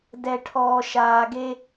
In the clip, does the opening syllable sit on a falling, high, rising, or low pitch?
low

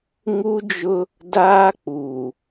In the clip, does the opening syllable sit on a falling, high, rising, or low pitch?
high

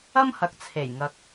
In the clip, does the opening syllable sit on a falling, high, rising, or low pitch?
high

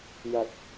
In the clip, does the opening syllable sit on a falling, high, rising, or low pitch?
low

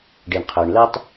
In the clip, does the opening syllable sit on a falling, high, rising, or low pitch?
low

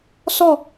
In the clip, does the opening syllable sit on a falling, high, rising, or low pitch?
falling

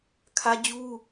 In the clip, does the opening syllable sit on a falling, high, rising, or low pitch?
high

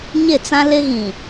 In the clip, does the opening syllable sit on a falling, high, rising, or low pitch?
falling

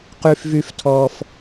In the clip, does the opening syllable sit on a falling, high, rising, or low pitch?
high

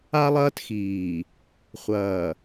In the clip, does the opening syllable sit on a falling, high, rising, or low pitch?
high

